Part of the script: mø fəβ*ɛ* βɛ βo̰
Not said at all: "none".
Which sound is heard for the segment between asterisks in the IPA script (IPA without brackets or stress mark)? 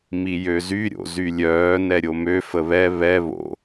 ɛ